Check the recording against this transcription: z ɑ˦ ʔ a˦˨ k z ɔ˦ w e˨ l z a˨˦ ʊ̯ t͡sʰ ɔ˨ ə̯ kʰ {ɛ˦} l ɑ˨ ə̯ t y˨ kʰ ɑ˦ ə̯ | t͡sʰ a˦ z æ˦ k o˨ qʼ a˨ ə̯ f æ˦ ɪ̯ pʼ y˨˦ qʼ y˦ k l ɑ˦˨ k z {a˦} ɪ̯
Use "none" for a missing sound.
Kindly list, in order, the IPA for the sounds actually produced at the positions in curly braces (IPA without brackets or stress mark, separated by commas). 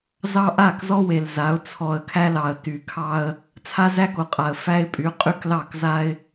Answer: æ˦, a˦